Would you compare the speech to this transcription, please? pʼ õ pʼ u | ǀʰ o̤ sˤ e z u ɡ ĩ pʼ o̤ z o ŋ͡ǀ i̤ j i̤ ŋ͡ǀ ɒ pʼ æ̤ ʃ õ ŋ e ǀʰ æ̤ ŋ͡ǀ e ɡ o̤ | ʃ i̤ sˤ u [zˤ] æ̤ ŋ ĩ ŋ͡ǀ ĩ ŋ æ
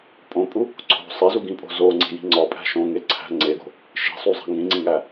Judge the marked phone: correct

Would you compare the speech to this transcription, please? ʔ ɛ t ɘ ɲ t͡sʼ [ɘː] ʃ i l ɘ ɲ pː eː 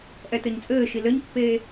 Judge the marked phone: correct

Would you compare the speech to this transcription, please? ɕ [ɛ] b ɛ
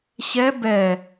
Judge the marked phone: correct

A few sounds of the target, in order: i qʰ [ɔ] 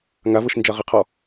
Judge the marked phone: correct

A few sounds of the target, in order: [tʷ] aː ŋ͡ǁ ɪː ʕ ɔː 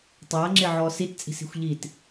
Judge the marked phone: incorrect: tˤ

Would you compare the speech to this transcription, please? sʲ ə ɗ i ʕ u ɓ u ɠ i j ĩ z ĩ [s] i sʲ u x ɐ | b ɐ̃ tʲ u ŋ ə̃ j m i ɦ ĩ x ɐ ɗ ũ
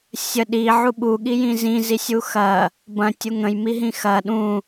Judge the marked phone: incorrect: z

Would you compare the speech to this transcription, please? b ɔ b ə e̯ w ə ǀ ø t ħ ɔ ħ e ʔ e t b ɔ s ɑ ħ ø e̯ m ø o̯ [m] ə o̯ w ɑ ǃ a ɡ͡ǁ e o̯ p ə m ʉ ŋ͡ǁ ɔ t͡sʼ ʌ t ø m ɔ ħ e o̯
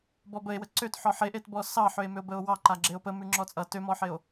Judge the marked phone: incorrect: b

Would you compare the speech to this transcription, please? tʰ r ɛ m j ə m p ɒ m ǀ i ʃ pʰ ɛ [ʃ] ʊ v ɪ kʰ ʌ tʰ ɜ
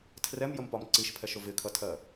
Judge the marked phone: correct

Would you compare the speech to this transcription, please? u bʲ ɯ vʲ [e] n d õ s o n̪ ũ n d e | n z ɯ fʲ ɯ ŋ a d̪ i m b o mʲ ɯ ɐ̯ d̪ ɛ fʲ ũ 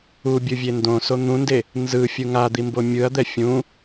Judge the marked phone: correct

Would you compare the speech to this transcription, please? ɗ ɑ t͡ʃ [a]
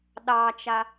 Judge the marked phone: correct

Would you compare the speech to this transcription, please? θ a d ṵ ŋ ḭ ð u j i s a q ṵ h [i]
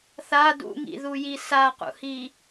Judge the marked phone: correct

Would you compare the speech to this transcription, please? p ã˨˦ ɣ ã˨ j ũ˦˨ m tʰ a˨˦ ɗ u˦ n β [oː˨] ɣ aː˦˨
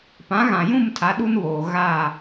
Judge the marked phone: correct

